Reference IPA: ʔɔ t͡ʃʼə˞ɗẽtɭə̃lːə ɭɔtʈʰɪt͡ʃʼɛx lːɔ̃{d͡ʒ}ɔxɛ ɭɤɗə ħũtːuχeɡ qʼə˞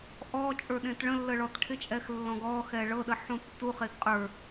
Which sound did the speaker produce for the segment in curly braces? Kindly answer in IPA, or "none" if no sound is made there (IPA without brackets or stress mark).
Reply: ɡ